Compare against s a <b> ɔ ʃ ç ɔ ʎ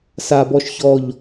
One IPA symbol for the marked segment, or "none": b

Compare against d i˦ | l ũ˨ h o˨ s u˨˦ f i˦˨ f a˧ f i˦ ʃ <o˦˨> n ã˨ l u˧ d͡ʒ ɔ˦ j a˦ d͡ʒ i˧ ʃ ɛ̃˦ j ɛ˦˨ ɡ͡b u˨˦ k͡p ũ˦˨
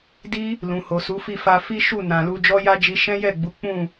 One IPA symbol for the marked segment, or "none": u˦˨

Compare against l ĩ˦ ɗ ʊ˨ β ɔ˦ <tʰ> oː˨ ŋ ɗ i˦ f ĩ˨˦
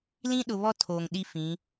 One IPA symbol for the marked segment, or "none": tʰ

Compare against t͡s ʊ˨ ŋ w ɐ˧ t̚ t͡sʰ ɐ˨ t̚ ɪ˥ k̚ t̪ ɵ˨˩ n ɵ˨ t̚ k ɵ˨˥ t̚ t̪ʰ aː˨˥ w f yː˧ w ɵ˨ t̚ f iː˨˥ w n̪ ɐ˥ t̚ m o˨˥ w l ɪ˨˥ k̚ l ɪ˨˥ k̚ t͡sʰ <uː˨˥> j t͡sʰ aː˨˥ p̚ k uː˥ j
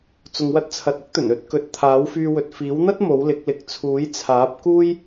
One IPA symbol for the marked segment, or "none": uː˨˥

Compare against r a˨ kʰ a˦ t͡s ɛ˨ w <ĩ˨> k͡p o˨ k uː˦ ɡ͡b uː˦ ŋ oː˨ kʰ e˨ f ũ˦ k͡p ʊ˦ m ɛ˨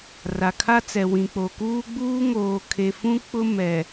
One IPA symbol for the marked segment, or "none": ĩ˨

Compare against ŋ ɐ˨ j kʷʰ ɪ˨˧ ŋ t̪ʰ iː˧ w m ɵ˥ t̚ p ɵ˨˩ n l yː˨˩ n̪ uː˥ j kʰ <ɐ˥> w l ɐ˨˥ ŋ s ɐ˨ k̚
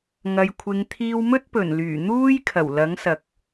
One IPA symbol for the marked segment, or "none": ɐ˨˩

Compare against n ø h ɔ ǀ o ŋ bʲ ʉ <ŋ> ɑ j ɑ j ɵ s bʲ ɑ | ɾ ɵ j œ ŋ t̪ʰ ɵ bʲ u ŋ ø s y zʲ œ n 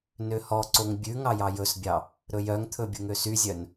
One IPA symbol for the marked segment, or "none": ŋ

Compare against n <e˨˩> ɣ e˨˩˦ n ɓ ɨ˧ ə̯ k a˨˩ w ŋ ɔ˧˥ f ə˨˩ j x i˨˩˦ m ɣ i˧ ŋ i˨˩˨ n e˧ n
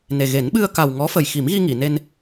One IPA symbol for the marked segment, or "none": e˨˩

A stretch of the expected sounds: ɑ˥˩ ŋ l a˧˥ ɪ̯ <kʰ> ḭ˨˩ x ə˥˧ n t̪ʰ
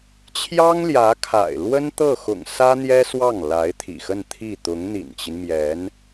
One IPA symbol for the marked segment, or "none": t̪ʰ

